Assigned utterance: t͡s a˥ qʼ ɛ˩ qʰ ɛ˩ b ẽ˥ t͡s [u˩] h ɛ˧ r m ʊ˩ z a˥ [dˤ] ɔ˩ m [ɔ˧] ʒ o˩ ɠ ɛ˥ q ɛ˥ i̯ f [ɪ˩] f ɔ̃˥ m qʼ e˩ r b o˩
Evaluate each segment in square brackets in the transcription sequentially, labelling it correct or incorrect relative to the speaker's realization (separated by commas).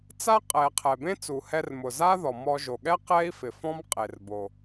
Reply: correct, incorrect, correct, correct